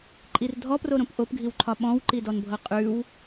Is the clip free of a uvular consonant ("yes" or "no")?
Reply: no